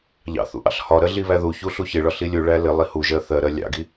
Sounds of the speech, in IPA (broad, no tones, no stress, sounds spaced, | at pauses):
ʎ ɑ̰ θ ṵ ʔ ɑ̰ ɬ h ɒ ɾ ɜ ɮ i β æ ð u ç u ɬ u ç ɪ ɭ ɒ ɬ i lʲ u ɭ æ l ɪ lˠ i h u ʒ ɜ θ ɜ ɾ ɜ lʲ ɑ̰ ɡ i